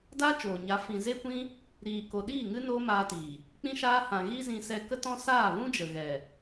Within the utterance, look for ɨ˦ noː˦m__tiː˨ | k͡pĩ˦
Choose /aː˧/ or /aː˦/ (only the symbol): aː˧